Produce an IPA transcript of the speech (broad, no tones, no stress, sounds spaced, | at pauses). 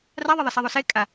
r a ðˤ ɐ ðˤ ɐ s ɛ ðˤ o s e kʼ a